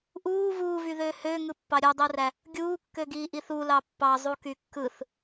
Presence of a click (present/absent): absent